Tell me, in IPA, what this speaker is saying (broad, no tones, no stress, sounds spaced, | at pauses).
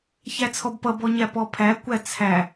ç æ t͡sʰ ɔ b p ʌ b ɔ ɲ æ p ɔ pʰ æ kʷ æ t͡sʰ æ